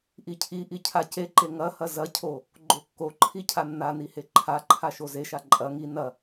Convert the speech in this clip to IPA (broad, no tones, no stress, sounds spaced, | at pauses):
ʔ i cʰ i ʔ i cʰ a c e ǃ e ŋ ɐ h ɐ z ɐ cʰ o | ɡ͡ǃ o kː o ǃʰ i cʰ a nː a n i h e ǃʰ a ǃʰ a ʃ o z e ʃ a ǃʼ ɐ ŋ i n ɐ